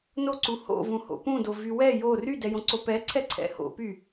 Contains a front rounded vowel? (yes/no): yes